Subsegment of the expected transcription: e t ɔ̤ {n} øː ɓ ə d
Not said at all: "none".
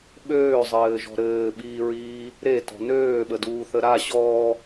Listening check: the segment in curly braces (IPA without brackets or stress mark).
n